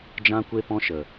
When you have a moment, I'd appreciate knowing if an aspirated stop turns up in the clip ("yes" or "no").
no